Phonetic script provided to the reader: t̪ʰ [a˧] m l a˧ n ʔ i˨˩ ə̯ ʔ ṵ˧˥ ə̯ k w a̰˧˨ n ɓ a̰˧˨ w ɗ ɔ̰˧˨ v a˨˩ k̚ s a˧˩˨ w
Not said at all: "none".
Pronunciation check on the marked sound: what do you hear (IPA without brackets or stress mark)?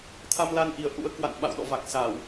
a˧